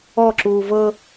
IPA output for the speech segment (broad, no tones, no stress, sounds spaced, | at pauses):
ɔ ǁ uː v ɤ